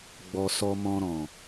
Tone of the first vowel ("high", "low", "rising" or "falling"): high